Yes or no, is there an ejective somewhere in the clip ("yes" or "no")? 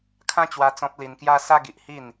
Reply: no